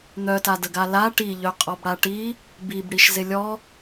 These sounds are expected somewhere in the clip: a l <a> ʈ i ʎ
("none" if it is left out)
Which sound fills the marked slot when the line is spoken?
a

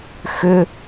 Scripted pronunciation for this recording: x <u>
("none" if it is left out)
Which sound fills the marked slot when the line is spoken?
ʏ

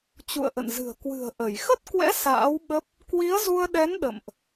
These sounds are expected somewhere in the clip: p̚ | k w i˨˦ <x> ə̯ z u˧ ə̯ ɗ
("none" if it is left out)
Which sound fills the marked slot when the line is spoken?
none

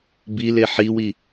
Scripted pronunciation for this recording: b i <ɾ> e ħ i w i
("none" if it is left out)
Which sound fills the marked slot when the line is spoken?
l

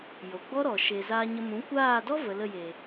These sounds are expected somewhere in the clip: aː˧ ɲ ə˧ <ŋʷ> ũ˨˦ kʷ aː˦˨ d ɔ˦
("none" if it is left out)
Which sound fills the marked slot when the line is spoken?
m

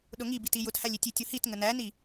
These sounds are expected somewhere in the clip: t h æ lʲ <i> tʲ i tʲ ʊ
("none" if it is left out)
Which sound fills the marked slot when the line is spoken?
i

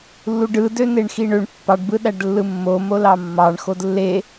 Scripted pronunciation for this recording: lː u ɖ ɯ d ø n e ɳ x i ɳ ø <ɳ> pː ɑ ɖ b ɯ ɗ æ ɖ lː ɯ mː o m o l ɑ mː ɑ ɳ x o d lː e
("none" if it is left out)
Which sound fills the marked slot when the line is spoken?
ɳ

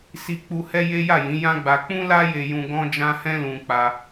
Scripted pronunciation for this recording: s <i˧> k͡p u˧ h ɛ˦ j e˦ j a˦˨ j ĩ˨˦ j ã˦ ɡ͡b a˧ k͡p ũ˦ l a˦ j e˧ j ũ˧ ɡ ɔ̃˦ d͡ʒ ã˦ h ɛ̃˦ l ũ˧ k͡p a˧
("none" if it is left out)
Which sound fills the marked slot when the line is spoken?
i˧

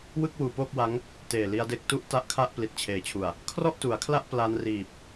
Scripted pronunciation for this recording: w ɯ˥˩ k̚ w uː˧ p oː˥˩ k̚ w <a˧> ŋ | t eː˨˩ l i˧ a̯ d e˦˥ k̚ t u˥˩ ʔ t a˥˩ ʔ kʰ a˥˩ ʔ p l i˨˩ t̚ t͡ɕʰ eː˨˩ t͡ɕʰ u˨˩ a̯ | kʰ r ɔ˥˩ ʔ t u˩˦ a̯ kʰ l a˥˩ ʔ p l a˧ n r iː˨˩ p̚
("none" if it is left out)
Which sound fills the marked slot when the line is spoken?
a˦˥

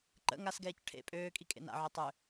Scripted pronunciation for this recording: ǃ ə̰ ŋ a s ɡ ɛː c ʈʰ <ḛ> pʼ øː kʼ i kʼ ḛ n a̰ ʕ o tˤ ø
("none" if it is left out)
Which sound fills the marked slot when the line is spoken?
ḛ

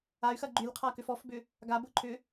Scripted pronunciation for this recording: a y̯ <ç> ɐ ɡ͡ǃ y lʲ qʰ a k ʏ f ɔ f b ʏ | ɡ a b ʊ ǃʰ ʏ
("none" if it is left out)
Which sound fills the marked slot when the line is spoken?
x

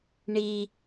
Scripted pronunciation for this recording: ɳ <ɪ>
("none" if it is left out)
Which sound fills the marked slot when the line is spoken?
i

